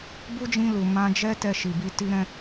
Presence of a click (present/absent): absent